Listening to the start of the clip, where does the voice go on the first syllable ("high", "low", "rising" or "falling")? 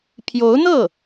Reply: rising